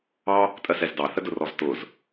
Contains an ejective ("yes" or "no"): yes